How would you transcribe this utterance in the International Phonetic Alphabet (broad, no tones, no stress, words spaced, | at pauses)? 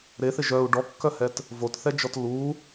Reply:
ɾeθɪ ʒœu̯ ɖɔkːœhɛt | votθɛd͡ʒɔt lu